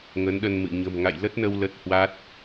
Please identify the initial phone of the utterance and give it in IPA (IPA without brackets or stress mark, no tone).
ŋ